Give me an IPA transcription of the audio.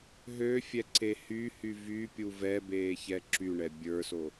ɦ ø fʲ ɛ ǀ e h y h y v y pʲ u v ɛ b eː ç ɛ ǁ y ɳ ɛ bʲ ə˞ s o

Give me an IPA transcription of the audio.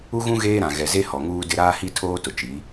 u˦ ɣ ũ˦ ɣ eː˦ ɾ ã˨ ɣ ɛ˨ z e˦ h ɔ˨ ŋ uː˦ d ɪ˦ ɾ aː˦ h i˦ tʰ oː˦ t ʊ˨ t͡ʃ i˨˦

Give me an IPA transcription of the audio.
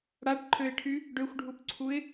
ɽ a ʈ ǃʰ ø ɪ̯ ʈʰ y | ɖ ø xʷ ɖʱ u p ǀʰ u ɪ̯

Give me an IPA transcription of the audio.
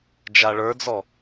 d͡ʒ a ɭ ə˞ d͡z ɔ

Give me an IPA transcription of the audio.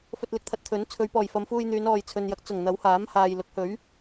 f ɵ˧ t̚ l ɪ˧ k̚ t̪ʰ ɐ˧ t̚ t̪ʰ ɵ˨˥ n t͡sʰ ɵ˨˧ ɥ p ɔː˨˩ j f ɐ˨˧ m f uː˧ j n̪ yː˨˧ n ɔː˨ j t͡sʰ ɵ˨ n j ɐ˨˥ k̚ t͡s ʊ˨˩ ŋ n̪ ɐ˨˥ w h aː˨˥ m h aː˨ j l ʊ˨˥ k̚ h ɵ˨˥ ɥ

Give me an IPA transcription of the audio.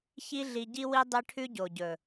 ç i˦ ɮ i˧ ɟ i˦ w i˦ dˤ e˦ ʈʰ ʉ˦ ɟ o˨ ɟ ɵ˨

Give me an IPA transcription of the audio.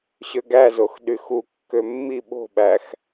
ɕ ø ɡ æ z o x ɗ y x u kː ø mː i ɓ o̤ ɓ æ x

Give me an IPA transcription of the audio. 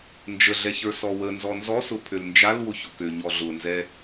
n d͡ʒ ə ɮ ɛ ç ə˞ s ɔ w ə n z ɔ n z ɔ s ʊ pʰ ø l n d͡ʒ a l w ʊ ç ʊ k ø ɲ ɔ ɮ ʊ n z ɛ

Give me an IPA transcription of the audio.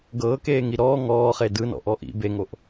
ɡ ɤː k eː ŋ i ɾ ɔː ŋ ɔː χ e d ɯ n ɔ̰ ʔ ɔ ʔ ḭ b e ŋ o ʔ

